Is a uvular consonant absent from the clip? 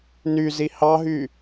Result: yes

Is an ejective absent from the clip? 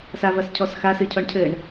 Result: yes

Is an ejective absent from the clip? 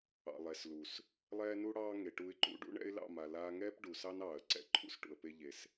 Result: yes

